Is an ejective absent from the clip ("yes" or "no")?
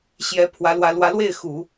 yes